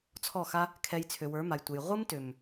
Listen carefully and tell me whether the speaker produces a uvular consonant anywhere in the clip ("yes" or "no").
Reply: yes